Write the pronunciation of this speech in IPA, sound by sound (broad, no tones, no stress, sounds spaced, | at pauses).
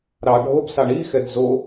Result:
ɾ ɑ ɖʱ o b s ɑ ɳ i x ɛ d z o